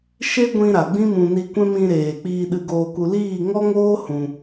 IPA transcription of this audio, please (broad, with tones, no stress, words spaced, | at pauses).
ʃe˦ɡʷĩ˧ɾa˨ ɡ͡bĩ˦mũ˧ ni˧kʷɛ̃˦ mĩ˧ɾeː˨ k͡piː˧ɗɨ˧ɡoː˧ku˧ liː˦˨ŋɔ˦ŋoː˦ hũ˧